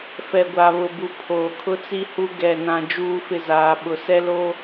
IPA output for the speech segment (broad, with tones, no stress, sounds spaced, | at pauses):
f ɛ˨ ɡʷ a˨ β ʊ˨ b u˨ pʰ oː˨ kʰ ʊ˦ t͡s i˦ h u˦ ɡ ɛ˦˨ n ã˦ d͡ʒ uː˦ f ɪ˦˨ z aː˨ ɓ ʊ˨ s ɛ˦ l o˦